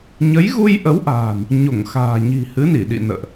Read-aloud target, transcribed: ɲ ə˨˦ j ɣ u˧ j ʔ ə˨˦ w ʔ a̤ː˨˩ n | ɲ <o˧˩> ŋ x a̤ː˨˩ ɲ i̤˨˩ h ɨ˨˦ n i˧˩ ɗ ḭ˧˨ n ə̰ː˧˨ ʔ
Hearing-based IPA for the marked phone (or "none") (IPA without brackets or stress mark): o˧˩